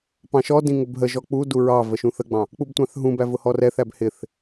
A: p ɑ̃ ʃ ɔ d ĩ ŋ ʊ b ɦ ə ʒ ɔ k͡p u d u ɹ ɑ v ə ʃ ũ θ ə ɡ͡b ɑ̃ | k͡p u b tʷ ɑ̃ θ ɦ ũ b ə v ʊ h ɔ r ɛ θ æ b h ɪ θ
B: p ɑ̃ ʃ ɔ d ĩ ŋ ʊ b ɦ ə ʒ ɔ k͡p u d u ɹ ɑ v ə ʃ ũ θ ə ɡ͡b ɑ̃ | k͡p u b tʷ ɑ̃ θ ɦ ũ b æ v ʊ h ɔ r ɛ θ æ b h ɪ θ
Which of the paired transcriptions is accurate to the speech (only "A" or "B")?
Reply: B